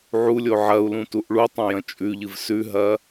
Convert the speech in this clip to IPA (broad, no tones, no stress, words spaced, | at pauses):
ʕulʲo ʕɐu̯lũtuʔ ɭutˤɐ̃jɐ̃ t͡ʃʼʉʎɨv sʉɦɐ